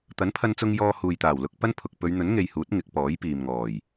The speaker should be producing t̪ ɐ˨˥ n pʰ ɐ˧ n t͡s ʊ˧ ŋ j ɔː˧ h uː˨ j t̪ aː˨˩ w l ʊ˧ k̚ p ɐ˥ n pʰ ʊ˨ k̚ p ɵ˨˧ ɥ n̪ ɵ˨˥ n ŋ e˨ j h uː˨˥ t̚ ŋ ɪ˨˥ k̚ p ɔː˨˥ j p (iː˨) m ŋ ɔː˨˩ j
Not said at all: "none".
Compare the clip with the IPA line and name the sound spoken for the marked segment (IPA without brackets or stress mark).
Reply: iː˨